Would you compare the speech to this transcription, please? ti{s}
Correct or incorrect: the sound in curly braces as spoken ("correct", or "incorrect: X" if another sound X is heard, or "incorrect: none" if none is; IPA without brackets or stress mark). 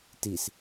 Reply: correct